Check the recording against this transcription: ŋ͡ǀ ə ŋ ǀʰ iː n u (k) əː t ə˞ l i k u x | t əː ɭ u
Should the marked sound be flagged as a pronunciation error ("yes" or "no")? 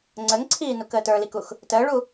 no